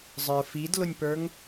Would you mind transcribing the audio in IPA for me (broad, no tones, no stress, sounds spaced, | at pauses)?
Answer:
zˤ ə˞ f i d l ʊ nʲ p ə˞ ŋ